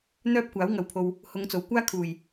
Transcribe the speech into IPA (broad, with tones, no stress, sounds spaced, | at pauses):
n̪ œː˥ p̚ kʷ aː˨˥ w ŋ ɐ˨ w pʰ o˨ w | h ʊ˨˧ ŋ t͡s o˨˩ w kʷ aː˥ kʰ uː˨˩ j